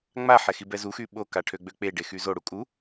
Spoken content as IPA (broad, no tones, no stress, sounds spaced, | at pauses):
ŋ͡m a ħ ɛ x i b ɛ z u x y ɓ o k a ʈʰ ø ɡ͡b ø k͡p e ɖ e x y z o ɽ u kʼ u